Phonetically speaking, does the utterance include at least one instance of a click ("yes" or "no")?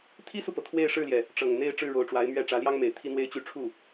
no